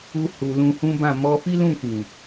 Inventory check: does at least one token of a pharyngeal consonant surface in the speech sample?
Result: no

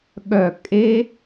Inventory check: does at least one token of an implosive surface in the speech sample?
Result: yes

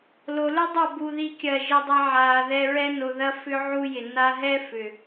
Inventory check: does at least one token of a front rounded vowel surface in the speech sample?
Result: yes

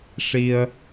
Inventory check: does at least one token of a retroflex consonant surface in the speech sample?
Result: yes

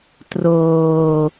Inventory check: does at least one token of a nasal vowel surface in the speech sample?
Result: no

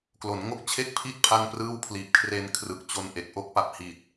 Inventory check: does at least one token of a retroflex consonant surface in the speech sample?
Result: no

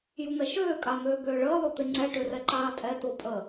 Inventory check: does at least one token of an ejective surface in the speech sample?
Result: yes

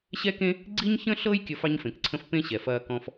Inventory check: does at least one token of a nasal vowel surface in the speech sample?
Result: yes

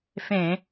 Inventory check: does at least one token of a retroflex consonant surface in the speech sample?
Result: no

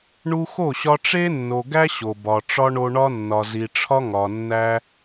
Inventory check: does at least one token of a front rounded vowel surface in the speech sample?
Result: no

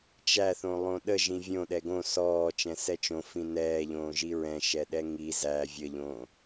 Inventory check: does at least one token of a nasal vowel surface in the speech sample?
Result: yes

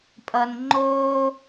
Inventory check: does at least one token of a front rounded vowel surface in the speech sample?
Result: no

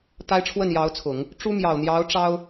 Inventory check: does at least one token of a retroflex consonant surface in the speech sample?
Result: yes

